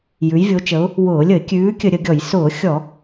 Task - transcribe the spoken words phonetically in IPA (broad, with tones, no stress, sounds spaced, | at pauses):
j ʉ˨˦ j vʲ o˨˦ t͡ʃ ə˨˦ ʊ̯ | w ʊː˧˩˧ lʲ ə˧˩˧ ɪ̯ kʲ ʉː˨˦ kʲ ə˧˩˧ ɾʲ ə˧˩˧ ɡʲ ɔ˧˩˧ j s ʊː˧˩˧ xʲ ɔ˧˩˧